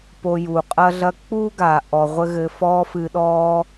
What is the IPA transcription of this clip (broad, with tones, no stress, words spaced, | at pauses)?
po˧ju˩qʼɐ˥ɮɐ˥ k͡pu˥ ɡa˩ ʔɔ˧ ʁʷɘ˥ɣɘ˧ fɔː˥fɨ˧ ɗɔː˥